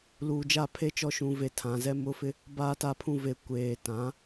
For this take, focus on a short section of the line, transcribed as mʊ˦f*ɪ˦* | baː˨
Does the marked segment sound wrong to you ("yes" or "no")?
no